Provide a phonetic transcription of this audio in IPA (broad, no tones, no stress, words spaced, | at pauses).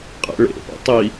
qʼɛ̰ɭḛpɛ̰ tˤi